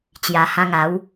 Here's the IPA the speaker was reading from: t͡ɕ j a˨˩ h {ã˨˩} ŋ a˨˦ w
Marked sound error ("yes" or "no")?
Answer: yes